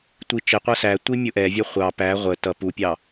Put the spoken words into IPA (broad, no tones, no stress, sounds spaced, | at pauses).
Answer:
tʷ i t͡ʃ ɪ qʷ ʌ s æ tʷ i mʲ ʊ ʔ ɛ vʲ ʌ χʷ ɑ p æ ʁʷ ə t ʌ p u pʲ ɑ